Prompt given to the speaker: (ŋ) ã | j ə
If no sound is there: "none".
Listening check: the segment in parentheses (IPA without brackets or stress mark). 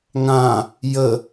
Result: ŋ